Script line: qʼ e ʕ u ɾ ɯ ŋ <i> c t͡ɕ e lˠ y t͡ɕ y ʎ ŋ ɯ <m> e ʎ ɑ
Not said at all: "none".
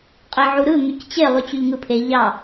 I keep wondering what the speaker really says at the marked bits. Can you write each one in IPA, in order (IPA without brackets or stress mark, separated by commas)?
y, pʰ